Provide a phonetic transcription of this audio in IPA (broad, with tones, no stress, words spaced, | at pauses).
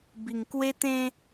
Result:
bi˧ŋkwe˦t̪ẽ˦